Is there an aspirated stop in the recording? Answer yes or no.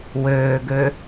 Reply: no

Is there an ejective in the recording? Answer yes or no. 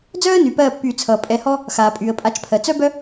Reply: yes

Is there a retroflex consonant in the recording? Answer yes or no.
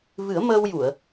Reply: no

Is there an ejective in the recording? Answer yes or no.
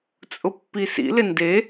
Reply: yes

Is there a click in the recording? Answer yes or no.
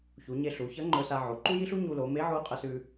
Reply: yes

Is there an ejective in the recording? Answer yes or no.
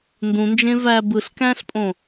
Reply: yes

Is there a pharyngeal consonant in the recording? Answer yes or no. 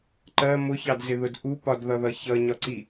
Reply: no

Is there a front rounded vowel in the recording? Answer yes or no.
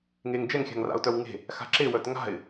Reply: yes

